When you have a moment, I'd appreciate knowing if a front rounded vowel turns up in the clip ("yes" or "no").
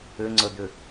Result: yes